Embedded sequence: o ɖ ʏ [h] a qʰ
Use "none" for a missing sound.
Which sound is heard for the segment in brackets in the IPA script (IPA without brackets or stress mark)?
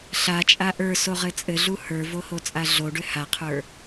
h